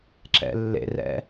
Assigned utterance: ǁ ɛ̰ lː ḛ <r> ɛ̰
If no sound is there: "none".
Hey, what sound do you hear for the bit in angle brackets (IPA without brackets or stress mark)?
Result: r